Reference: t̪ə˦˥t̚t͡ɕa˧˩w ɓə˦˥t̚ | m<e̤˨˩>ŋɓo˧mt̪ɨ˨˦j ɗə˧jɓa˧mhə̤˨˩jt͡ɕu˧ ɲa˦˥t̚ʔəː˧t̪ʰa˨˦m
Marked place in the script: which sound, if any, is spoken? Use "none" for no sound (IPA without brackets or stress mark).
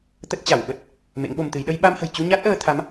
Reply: ḛ˧˥